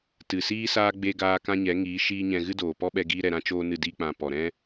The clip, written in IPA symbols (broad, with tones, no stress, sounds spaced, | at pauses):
t ɨ˨ s iː˦ s aː˦ ɡ͡b e˦ ɡ aː˦ k ã˦ ɲ ɛ˨˦ ŋ iː˨˦ ʃ iː˦ ɲ ɛ̃˧ ɣ ɨ˦ d oː˨ p ɔ˦ ɓ ɛ˧ ɡ iː˦ ɾ ɛ˧ ɾ ã˦ t͡ʃ oː˦ n ɨ˦˨ d i˧ k͡p ã˨ p ɔ˨ ɾ ɛ̃˦